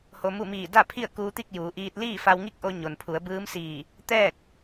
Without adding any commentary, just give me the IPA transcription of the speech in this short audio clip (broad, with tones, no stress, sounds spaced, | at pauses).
h o˧ m u˥˨ m iː˧˩ d a˥˨ pʰ i˥˨ ə̯ k uː˧ t̪ i˥˨ k̚ j uː˩˧ ʔ iː˧ t̚ l iː˥˨ f a˧ w ŋ i˥˨ k̚ ʔ o˧ ɲ o˩ n pʰ u˩˧ ə̯ b ɯː˧˥ m s iː˧˩ | t̪ ɛː˥˨ k̚